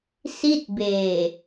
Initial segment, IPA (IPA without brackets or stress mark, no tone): s